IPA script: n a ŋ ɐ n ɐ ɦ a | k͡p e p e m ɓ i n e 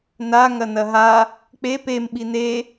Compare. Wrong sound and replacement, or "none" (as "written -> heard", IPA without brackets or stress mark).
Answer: none